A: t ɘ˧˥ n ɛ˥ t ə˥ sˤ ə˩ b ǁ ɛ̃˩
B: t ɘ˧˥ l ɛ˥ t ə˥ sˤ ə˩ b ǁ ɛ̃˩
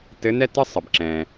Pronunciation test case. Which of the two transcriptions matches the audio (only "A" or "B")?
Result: A